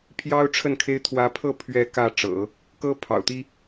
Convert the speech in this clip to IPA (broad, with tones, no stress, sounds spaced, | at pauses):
pʰ j ɑ˥ ʊ̯ ʈ͡ʂʰ ə˥˩ n kʰ e˥ ɪ̯ t̪ʰ w ä˧˥ pʰ ɤ˥˧ pʰ ɥ ɛ˥˧ k ä˥˩ ʈ͡ʂ ɤ̰˨˩˦ | k ɤ˥ pʰ ɑ̰˨˩ ʊ̯ t̪ i˥